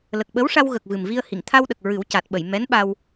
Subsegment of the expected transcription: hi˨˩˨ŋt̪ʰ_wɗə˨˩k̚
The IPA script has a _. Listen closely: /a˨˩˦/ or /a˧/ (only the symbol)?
a˧